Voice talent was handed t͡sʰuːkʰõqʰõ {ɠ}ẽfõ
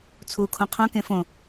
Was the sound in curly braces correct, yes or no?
no